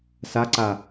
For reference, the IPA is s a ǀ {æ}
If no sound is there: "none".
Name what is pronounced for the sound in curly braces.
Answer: a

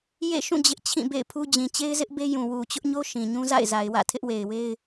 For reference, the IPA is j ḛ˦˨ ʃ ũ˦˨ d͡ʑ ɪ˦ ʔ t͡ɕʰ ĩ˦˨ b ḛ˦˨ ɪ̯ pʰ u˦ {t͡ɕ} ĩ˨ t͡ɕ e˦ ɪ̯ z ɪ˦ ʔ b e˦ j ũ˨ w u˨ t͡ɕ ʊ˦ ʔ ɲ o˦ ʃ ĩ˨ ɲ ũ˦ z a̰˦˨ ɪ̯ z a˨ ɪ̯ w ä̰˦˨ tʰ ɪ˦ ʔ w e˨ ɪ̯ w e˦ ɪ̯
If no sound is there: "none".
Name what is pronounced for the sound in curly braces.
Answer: d͡ʑ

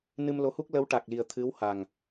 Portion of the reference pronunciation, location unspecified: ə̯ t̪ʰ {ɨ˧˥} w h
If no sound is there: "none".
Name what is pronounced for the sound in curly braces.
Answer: ɨ˧˥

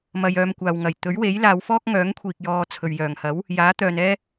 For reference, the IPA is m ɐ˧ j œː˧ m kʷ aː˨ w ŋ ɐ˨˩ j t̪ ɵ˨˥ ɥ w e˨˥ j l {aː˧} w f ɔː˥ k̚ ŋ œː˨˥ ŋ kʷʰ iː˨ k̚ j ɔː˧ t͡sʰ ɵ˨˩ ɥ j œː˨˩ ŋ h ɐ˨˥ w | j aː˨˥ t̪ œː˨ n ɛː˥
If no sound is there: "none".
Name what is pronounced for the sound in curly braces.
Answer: aː˨˧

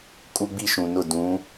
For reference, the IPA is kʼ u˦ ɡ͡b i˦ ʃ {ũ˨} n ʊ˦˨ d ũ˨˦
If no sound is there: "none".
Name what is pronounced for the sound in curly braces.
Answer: ũ˨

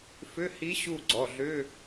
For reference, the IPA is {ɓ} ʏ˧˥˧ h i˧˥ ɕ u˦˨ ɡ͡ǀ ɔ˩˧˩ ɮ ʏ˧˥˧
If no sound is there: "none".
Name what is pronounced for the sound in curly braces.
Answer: f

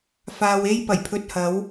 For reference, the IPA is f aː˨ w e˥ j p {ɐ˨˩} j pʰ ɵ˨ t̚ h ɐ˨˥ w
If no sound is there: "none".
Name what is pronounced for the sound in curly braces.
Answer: ɐ˨˩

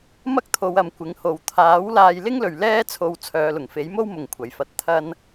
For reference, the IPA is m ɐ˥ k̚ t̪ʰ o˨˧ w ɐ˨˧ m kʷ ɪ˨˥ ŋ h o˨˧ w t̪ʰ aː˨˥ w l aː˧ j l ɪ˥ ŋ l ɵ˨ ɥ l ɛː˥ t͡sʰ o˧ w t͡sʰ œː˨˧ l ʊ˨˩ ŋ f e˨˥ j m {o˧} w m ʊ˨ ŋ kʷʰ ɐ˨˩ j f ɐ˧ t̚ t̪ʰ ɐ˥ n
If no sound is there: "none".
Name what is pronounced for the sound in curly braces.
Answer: o˥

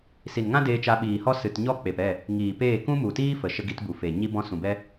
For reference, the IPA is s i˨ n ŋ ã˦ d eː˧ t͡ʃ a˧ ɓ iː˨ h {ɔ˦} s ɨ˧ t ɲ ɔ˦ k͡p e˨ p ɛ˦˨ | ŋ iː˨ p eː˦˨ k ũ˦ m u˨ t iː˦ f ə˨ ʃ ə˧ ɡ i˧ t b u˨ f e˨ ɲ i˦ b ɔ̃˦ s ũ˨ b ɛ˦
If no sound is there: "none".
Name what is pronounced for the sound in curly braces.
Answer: ɔ˦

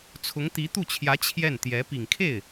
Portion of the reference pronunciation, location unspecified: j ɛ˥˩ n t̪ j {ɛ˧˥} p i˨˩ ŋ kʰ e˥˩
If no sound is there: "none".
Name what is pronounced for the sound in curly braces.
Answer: ɛ˧˥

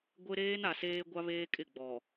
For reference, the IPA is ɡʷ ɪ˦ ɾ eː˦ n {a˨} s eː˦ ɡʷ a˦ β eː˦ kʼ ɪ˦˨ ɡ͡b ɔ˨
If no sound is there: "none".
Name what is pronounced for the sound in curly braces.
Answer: a˨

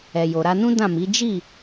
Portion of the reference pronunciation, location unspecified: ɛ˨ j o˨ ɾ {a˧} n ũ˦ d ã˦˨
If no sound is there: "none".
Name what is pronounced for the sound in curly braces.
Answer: a˧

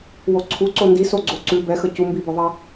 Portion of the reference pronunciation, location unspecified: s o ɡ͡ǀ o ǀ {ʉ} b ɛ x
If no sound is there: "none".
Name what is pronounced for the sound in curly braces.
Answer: ʉ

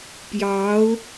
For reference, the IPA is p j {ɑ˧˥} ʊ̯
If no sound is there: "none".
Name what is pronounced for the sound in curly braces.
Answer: ɑ˧˥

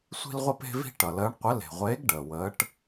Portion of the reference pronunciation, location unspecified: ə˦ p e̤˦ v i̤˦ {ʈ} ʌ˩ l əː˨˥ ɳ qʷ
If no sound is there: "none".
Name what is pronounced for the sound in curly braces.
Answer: ʈ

